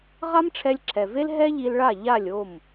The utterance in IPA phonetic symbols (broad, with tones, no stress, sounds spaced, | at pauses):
ʁ a˥ m ʈ͡ʂʰ ɛ˧ lʲ ǁʰ ɛ˩ v e˥ l ɦ ɛ˥ ʎ i˧ l ɭ a˥˩ ʎ a˥˩ lʲ o˥˩ m